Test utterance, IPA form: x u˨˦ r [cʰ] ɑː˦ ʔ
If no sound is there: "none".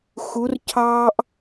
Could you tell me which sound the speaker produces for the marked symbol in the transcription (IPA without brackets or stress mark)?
cʰ